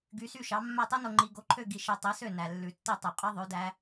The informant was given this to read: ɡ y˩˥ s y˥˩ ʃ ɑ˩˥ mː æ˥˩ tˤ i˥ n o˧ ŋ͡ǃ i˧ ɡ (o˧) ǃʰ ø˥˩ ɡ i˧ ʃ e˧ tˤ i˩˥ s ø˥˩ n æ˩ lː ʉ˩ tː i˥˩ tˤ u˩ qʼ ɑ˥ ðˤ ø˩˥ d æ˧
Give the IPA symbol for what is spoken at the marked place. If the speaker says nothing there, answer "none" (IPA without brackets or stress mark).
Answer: o˧